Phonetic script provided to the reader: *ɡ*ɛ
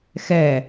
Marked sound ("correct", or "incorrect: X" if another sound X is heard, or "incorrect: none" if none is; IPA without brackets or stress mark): incorrect: x